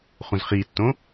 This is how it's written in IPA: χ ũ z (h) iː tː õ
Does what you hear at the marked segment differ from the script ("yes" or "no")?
yes